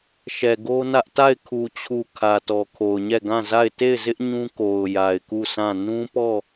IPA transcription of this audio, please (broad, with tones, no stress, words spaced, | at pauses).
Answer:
ʃɛ˨ɡo˦nä˦ʔ ta˦˨ɪ̯kʰu˨t͡ɕʰu˨ kʰä˨tɔ˨kʰo˨ʊ̯ɲɛ˦˨ ɡã˦˨za˦˨ɪ̯ te˦˨ɪ̯zɪ˦ʔ ɲũ˦ko˨ʊ̯ ja˨ɪ̯ku˦˨sʰã˦˨ nũ˦pɔ˦˨